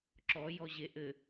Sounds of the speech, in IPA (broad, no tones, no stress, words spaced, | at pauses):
ǁɔ jɔʑeʔɘ